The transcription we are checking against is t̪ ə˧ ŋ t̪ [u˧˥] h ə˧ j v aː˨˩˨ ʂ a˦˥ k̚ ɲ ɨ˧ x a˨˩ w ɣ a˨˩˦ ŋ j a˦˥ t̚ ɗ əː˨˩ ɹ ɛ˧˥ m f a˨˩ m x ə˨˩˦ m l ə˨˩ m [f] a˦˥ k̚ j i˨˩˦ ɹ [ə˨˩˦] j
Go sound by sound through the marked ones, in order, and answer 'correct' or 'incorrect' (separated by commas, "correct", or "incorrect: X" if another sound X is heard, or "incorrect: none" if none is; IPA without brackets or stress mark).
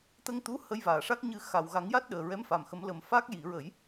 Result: correct, correct, correct